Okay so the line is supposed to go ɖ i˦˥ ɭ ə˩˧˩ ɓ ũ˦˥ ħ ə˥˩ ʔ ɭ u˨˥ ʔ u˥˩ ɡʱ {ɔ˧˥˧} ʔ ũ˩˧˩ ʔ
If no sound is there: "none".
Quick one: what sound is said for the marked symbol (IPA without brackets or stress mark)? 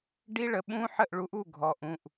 ɔ˩˧˩